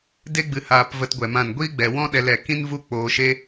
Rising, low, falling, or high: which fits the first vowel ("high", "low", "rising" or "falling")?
high